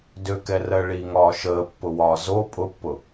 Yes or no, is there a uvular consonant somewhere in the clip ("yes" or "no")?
no